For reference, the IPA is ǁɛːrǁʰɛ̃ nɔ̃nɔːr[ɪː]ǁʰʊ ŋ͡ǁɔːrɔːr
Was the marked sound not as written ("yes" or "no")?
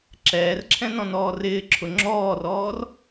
no